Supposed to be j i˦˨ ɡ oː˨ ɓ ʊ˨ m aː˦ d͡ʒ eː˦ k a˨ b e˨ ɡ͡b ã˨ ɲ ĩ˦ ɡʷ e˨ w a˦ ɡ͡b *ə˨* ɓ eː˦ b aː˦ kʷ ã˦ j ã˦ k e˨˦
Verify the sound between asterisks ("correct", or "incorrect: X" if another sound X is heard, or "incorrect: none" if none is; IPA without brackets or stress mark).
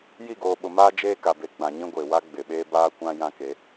incorrect: ɪ˨